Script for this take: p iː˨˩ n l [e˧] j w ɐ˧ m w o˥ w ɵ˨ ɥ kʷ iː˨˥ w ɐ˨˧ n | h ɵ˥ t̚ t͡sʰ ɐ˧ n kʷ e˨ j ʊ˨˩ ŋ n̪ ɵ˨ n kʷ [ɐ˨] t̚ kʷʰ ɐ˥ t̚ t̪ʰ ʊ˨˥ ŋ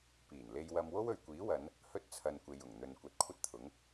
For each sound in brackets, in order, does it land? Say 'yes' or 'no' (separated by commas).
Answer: yes, no